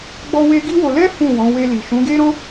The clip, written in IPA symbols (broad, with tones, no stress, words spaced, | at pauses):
ɡ͡bɔ˦we˦ ɡi˦wo˧ lɛ˦ fũ˦˨wɔ̃˨˦ we˧li˨ ʃũ˨˦ɡe˦ɾɔ̃˦